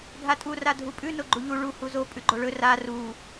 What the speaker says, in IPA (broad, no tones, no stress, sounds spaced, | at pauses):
ɡʱ a tʼ u r a dʱ u pʼ ʉ n o ɡ͡ǃ u ʎ u ɭ u h u z o pʼ ʉ ɡ͡ǃ o ɭ ɵ r a r u